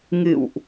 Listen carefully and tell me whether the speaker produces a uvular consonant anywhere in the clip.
no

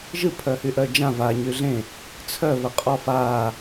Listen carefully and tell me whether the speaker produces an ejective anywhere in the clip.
yes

